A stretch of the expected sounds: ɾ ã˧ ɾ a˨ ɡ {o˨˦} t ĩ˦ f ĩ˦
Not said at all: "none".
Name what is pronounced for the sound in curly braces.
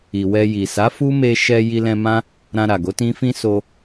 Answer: o˨˦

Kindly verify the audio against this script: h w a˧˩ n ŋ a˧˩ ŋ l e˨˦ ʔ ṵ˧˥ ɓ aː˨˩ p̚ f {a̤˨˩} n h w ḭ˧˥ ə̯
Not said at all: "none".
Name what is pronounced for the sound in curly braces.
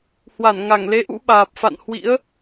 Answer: a̰˧˨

